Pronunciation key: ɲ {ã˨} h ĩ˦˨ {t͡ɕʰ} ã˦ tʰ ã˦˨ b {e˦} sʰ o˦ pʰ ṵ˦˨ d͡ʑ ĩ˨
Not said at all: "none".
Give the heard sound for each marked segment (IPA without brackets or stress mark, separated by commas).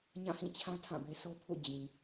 ã˦˨, t͡ɕʰ, e˦